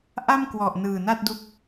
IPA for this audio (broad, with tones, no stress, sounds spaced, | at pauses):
ʔ a˥˩ m k w ɔ˨˩ ʔ n ɯː˨˩ n a˥˩ t̚ d u˦˥ k̚